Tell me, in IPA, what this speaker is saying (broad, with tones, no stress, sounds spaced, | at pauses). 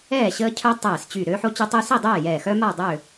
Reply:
ɛː˥˨ ɕ əː˦ cʰ œ˦ tˤ ɛː˧˩ s t͡ɕ y˧˩ ɾ øː˦ ħ o˦ t͡ɕ o˦ tˤ y˦ s i˥˨ dˤ ɛː˥˨ j ɛː˧˩ x œ˦ m a˥˨ dˤ ø˥˨